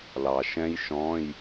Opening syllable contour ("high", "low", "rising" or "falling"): low